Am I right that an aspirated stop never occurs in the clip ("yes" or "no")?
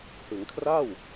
no